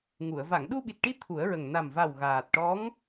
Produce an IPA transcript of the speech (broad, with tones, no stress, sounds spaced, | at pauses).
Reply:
ŋ u˨˩˨ ə̯ v a˨˩˨ ŋ ɗ u˧ ɓ i˨˩ t̚ ʈ i˧ t̪ʰ u˨˩˦ ə̯ ɹ ə˨˩ ŋ n a˨˩ m v a˨˩ w ɣ aː˨˩ t̚ ʈ ɔ˧˥ ŋ